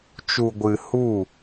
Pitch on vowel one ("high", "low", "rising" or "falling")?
low